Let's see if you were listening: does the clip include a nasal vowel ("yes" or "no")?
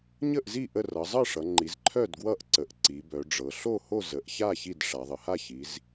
no